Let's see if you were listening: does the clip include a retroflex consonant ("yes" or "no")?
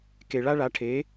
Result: yes